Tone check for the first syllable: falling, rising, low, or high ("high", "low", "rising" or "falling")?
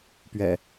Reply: low